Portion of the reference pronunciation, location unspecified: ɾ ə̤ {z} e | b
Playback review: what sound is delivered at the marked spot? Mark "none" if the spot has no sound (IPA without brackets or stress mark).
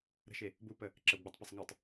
ʃ